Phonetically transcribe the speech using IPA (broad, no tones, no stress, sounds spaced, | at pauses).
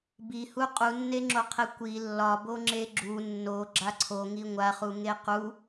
b i h u qʼ u nː e ŋ͡ǁ o qʰ e kʷ i lː ɒ b o ŋ͡ǁ e ɡ͡ǁ u nː o ɡ͡ǁ a ǀʰ o ŋ i ŋʷ a χ u ŋ e q u